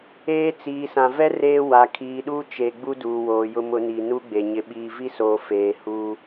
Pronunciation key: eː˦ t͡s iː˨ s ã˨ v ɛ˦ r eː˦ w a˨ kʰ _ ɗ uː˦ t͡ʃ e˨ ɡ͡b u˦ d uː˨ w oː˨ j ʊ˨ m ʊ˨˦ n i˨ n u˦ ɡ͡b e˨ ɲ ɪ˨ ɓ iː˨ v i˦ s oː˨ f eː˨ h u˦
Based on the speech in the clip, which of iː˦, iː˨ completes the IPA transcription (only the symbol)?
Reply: iː˨